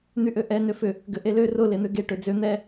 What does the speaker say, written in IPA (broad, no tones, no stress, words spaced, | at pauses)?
n̪yʔøʔɛ nøfʏ | ɡʏʔelø rʊ len̪ʏɡe ʈød͡zø n̪ɛ